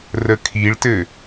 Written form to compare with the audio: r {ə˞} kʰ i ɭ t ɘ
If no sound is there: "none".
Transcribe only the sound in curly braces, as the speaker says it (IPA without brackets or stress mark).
ə